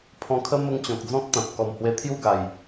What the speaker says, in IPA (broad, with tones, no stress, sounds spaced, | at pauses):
pʰ ɔ̃˧ kʰ ə˦ m ə˦ ŋ t͡ɕ ɔ̃˨ k̚ d͡z ɔ̃˦ k̚ t̪ ã˨ t̚ k ɔ˨˩ m h w e˧ t̪ʰ j u˥˧ ɡ a˨˩ j